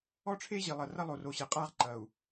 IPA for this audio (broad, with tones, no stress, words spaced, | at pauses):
ɔ˦ʈ͡ʂʰe˦ʑi˨ lˠɐ˨rɐ˦ lˠo˨ro˨ ɕɛ˨qʼa˦ʁǃɐ˨u̯